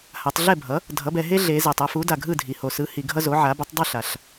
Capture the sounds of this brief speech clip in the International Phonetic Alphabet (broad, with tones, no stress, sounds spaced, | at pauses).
h a˩˧ tˤ ɮ ɛ˥˩ bʱ ʌ˩˥ | dʱ ʌ˩˥ b ɛ˩˧ ɦ e˦ ɮ e˩˧ z ɛ˩ tˤ a˦ f u˩˥ d a˩ ɡʱ ɯ˥˩ dʱ i˩˧ h o˩˧ s ɯ˩˥ h i˩˧ ɡʱ ʌ˦ z o˩˥ ʕ a˩˥ b u˩˥ tˤ dˤ i˥˩ ɬ a˩ ɬ